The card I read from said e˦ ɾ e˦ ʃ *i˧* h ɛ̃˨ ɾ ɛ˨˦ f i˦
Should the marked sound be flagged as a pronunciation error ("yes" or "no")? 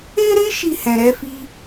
yes